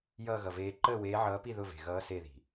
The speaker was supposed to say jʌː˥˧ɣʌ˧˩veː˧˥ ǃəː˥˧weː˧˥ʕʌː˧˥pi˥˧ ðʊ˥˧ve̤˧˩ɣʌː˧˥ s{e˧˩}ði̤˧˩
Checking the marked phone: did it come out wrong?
yes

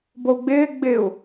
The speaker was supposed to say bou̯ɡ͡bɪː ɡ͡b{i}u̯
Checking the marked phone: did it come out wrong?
yes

